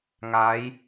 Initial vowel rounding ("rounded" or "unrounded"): unrounded